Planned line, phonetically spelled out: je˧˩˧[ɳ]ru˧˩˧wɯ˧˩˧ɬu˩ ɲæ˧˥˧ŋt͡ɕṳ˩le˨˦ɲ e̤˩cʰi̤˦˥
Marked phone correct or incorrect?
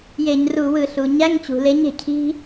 incorrect